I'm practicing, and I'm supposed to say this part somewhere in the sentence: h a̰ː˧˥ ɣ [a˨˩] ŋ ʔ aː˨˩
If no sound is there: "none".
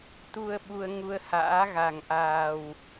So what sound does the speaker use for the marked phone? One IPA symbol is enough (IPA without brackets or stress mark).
a˨˩